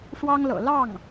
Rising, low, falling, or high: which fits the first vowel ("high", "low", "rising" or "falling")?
high